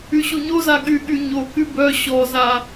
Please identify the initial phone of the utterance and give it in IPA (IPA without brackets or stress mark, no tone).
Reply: y